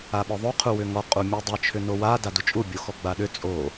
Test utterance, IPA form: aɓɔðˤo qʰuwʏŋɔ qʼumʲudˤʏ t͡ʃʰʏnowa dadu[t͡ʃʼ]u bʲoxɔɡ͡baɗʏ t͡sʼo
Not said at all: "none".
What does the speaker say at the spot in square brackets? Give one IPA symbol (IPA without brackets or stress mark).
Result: t͡ʃʼ